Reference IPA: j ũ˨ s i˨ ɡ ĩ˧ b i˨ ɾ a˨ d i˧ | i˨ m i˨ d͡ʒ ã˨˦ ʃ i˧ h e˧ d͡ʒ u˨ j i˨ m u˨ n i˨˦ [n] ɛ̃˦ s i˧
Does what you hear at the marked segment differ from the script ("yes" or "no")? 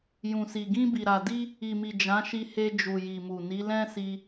yes